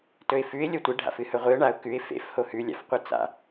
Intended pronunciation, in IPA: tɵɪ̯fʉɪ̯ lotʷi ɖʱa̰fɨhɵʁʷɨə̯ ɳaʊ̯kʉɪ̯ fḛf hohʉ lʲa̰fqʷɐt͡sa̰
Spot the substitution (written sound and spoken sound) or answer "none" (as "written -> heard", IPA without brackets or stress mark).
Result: l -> lʲ